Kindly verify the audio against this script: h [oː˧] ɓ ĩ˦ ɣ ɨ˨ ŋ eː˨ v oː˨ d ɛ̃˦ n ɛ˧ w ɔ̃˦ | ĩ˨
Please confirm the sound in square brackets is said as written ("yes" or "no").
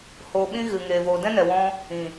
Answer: yes